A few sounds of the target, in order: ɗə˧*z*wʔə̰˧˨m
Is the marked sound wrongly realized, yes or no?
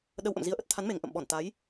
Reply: yes